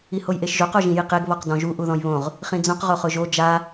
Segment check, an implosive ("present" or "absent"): absent